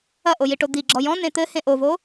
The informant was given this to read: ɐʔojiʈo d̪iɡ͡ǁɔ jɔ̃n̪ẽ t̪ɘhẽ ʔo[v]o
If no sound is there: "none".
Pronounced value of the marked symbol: v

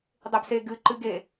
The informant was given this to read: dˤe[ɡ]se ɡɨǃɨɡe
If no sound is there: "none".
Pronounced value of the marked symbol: b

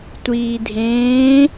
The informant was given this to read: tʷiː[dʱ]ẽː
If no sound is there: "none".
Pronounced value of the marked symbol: dʱ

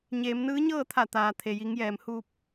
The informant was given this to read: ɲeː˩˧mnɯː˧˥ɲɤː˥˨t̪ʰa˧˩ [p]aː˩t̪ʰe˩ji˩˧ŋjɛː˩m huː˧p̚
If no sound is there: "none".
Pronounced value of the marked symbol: t̪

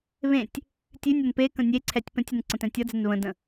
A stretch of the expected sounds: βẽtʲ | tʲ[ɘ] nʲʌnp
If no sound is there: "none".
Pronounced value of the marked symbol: ʉ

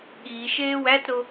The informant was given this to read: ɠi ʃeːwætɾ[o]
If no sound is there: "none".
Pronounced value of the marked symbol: o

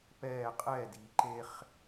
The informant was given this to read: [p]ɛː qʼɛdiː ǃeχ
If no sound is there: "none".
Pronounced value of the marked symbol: p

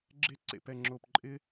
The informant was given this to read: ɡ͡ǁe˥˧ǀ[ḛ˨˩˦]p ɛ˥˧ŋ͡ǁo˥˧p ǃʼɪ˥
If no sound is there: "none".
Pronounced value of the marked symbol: ḛ˨˩˦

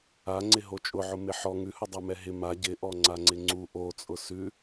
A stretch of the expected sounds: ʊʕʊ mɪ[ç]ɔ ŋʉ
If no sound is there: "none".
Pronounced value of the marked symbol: ħ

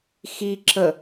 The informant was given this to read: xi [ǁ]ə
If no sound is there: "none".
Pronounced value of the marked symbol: ǁ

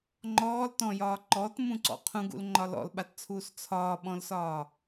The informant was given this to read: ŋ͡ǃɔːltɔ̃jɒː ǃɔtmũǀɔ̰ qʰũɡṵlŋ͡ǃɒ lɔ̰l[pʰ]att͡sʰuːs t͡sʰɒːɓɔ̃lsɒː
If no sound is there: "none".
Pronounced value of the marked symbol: ɓ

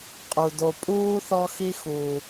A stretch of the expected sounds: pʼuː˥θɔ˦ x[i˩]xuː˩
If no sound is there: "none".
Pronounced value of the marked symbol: i˦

